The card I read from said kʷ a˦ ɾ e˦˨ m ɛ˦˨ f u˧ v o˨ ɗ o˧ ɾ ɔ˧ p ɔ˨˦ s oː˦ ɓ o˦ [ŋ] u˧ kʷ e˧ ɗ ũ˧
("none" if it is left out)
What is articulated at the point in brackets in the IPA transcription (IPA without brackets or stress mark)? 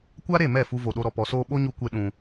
ɲ